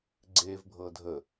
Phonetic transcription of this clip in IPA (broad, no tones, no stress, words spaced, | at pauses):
ɡ͡ǀevbʱɤ dʱə